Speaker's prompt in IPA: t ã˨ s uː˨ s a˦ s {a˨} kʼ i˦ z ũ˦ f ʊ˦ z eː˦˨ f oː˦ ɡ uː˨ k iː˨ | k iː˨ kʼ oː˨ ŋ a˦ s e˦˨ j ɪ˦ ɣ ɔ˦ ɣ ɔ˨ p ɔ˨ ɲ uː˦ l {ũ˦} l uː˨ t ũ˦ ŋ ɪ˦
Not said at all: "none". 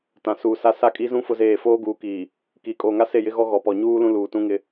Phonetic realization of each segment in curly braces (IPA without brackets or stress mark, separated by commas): a˦˨, ũ˦